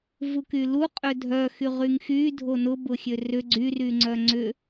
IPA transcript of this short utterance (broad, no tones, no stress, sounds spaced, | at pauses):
v u k y l u qʼ ø dʱ œ x y ʁ y ŋ x y dʱ o n ʊ b ʊ xʲ ø r ʏ ɡ͡ǀ y r y ŋ͡ǀ œ ŋ͡ǀ ʏ